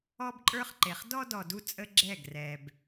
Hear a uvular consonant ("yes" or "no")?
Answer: yes